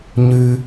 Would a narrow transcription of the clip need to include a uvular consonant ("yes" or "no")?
no